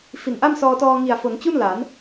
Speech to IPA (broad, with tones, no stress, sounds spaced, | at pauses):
f i˨˩ n ʔ a˥˩ m s ɔː˧ t ɔː˧ ŋ i˨˩ a̯ f o˩˦ n t͡ɕ u˥˩ n l a˩˦ n